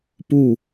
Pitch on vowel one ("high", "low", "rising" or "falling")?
falling